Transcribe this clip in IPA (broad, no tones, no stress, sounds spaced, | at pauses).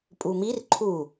pʼ u m i r ǃʰ u